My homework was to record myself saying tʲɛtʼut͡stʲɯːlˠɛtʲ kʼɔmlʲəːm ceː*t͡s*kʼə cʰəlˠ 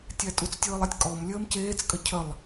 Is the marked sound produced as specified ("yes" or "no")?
yes